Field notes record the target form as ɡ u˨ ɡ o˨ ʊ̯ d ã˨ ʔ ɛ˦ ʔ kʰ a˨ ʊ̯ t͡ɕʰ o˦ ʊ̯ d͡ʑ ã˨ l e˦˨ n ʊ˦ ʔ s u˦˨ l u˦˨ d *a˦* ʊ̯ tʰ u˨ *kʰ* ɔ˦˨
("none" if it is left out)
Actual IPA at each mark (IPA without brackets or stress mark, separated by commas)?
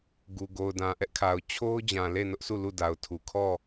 a˨, kʰ